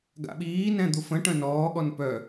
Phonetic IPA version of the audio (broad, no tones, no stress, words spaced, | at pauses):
ɡa̰ɓiːnɛ̃ d̪ufə̃ʈœ̃ nɔːɠɔn pœ